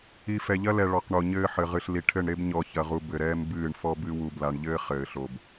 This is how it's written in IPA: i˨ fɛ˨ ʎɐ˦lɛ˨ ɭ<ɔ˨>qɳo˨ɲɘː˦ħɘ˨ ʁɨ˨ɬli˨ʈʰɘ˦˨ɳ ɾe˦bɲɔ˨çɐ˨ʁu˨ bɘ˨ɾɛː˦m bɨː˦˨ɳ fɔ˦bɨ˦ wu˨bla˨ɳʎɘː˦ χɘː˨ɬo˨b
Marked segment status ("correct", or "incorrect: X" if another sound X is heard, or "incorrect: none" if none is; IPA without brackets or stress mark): correct